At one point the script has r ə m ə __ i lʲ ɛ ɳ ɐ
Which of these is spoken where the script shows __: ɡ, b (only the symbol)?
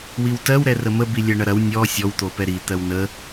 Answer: b